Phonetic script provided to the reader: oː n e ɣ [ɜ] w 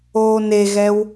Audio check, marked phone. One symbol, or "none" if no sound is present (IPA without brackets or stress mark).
ɛ